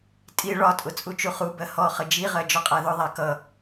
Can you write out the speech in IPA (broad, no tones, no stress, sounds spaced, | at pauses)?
tʼ i ɭ ɒ tʼ ʊ t͡sʼ u t͡ʃ u χ u b ɜ h ɔ χ ə d͡ʒ i ʁ ɜ d͡ʒ ɔ qʼ æ ð ʊ ðˤ æ k ʌ